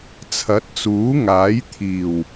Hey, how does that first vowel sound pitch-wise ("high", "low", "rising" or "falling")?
rising